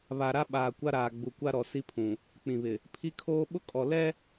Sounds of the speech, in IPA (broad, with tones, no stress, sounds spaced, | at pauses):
β a˨ ɾ a˦ ɓ aː˨ kʷ a˦ ɾ aː˨ ɡ͡b u˨ kʷ a˦ ɾ ɔ˨ s i˦ pʰ ũ˨ | k͡p ĩ˨ β ɪ˨ | pʰ i˦ kʰ oː˦ ɓ ʊ˦ kʼ ɔ˨ l ɛ˦